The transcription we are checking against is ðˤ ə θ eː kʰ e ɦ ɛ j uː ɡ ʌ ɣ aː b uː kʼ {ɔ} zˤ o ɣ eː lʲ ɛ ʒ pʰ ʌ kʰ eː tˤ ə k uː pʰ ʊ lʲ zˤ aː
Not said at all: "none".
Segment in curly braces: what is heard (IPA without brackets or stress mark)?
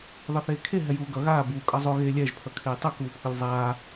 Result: ʌ